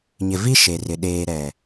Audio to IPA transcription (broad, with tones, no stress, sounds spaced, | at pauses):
ɲ ɪ˨ v i˦ ʃ e˨ r ɪ˨ ɗ eː˨ ɾ ɛ˨